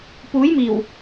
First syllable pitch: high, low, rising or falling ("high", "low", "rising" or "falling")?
rising